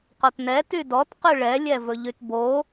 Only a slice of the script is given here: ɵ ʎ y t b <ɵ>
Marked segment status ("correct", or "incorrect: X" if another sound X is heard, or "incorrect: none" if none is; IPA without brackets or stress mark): incorrect: o